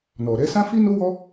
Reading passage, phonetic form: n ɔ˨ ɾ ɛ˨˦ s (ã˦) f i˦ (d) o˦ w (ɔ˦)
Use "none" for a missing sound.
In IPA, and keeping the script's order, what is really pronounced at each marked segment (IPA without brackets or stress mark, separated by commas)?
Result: ã˦, n, ɔ˦